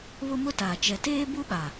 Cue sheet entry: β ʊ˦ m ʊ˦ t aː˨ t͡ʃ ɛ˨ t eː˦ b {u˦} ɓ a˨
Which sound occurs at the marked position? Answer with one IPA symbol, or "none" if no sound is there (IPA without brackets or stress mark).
u˦